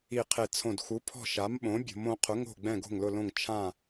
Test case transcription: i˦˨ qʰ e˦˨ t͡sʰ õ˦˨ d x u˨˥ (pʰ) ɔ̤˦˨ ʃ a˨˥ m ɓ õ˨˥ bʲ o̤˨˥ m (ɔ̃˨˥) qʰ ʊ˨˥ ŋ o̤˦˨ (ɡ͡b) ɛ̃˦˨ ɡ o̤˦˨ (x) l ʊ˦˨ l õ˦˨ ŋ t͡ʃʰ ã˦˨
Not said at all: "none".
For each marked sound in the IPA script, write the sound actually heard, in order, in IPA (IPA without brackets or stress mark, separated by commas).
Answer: pʰ, õ˨˥, ɡ͡b, ŋ